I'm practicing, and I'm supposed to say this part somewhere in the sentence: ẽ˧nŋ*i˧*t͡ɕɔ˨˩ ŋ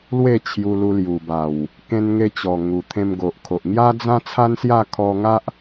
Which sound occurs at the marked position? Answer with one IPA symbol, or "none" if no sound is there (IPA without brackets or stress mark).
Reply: e˧